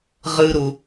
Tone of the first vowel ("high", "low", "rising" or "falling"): high